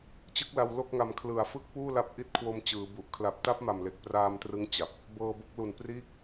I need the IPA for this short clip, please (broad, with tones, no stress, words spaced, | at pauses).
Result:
t͡ɕɯ˦˥k̚la˧w lo˥˩k̚ŋa˧m kʰlɯ˨˩a̯fɯ˥˩k̚ puː˥˩la˦˥p̚ ʔi˦˥t̚kʰwo˧m t͡ɕɯː˩˦bu˨˩ʔ kʰla˨˩p̚ta˦˥p̚ ma˨˩mle˨˩k̚ praː˧mtrɯ˦˥ŋ t͡ɕa˨˩p̚ | bɤː˧bo˦˥k̚lu˨˩n priː˥˩k̚